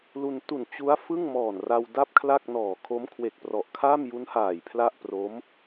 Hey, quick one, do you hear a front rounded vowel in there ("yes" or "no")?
no